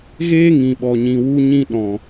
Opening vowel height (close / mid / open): mid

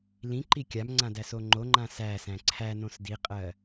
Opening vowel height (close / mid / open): close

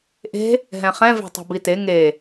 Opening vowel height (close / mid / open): mid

